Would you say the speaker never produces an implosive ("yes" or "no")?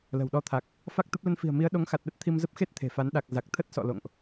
no